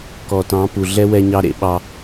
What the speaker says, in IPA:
k ɔ˨ t ɑ̃˨˦ p u˨ ɮ ɛ˦ w ɛ˧ ɲ ɑ˧ ɾ ḛ˧ ɓ ɑ˧

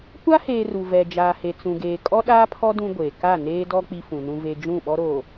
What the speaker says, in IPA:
kʷ a˦ h eː˨ r u˨ v ɛ˨ d͡ʒ aː˨ h e˨ t͡s ũ˨ ɡ eː˨ kʼ ɔ˦ ɗ aː˦ pʰ ɔ˦ d ũ˦ ɡʷ eː˨ k a˦˨ n eː˦ d ɔ˦ k͡p i˦ f ũ˨ n ũ˦ v e˦ d͡ʒ ũ˦˨ ɓ ɔ˦ ɾ oː˨

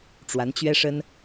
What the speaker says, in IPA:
ʈ͡ʂ w a˧˥ n t͡ɕ ɥ ɛ˥ ʂ ə˥ n

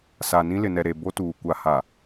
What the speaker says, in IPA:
s a˨ n ĩ˦ l ɪ˨ n ɛ˨ ɾ e˨ b o˦ t uː˨ kʷ a˨ h a˨

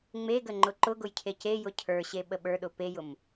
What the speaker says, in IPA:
ŋ͡m e ɡ ə ŋ͡ǃ ʊ ǃ ʊ ɡ ʊ j cʰ e c e j ʊ cʰ ə˞ ɕ e ɓ ə ɓ ə˞ ɗ ʊ p e j ʊ m

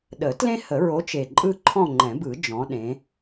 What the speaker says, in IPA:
ɗ ə˨˩˦ t l ẽ˦ h ə˨˩˦ ɹ o˨˦ t͡ʃ e˨˩ ǃʼ ɯ˦˨ ǃʰ ɔ̃˦˨ ŋ͡ǃ ɛ̃˨˩˦ b ɯ˨˩˦ d͡ʒ ɔ̃˨˦ ɗ ẽ˨˦

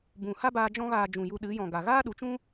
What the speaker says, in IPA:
b ũ˨ h a˦ b aː˧ d͡ʒ ɔ̃˦ ɣ aː˧ d͡ʒ ũ˨ j u˧ ɗ ɨ˨˦ j ɔ̃˨ ɡ a˨ ɣ aː˦ ɗ u˨˦ t͡ʃ ũ˦

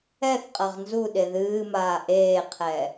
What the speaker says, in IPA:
ɛ θ qʼ ɐ ʁ n z u ɗ e ð ɨː m aː ʔ eː qʰ ɛ

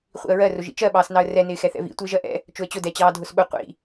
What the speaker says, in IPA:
χʷ ḭ ə̯ ɹ ɜ r ʊ ʒ ḭ t͡ʃ ɜ ɓ ɑː s n ɑ ə̯ r ɛ n ɪː x ɛ θ ɛ̰ v ḭ tʷ ɪː ʒ ɜ ʔ ɛ̰ | t͡ʃ ʊ ə̯ t͡ɕ ʊ d ɛ t͡ɕ ɑː dʱ ʊ s ɓ ʊ qʷ ḭ

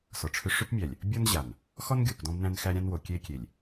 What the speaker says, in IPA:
s ɔ˨ ʈ͡ʂʰ ʏ˦ ʂ ʏ˦ p mʲ æ˨ lʲ | bʲ ɔ˦ n ʑ a˨ n | x ɔ˦ n ɡʲ o˨ p d ɔ̃˦ b n æ̃˦ n x æ˦ ɾʲ ã˦ n w o˨ kʲ e˦ kʲ e˨ lʲ

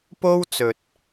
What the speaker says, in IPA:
p o˥ w t͡s ɵ˨ t̚

